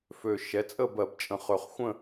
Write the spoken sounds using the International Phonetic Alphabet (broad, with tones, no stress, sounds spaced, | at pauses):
f ø˨˩ ʃ ɛ˩˥ t͡sʼ ə˥˨ b ɜ˧˩˧ b t͡ʃʼ ə̃˨˩ χ ø˨˩ χ xʷ ə̃˥˨